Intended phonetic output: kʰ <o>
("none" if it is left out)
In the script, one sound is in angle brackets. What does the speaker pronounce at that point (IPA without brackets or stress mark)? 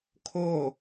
o